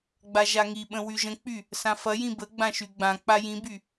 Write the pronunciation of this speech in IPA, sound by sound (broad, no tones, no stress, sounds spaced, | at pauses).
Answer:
ɡ͡b a ʒ a ŋ i ɓ ə̃ w y ʒ ə̃ k͡p y | s ã f ɐ j ĩ b ə ɡ͡b ã ʃ y ɡ͡b ã k͡p a j ĩ b y